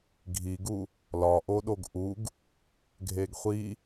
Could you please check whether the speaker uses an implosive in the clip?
yes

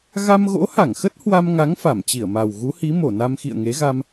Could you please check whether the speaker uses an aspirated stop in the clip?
no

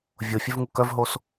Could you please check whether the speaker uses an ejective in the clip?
no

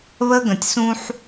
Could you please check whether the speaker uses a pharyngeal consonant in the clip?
yes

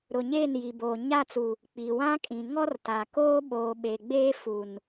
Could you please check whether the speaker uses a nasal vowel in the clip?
yes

